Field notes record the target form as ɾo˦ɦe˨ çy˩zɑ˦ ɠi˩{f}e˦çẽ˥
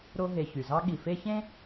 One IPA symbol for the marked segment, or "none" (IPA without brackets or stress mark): f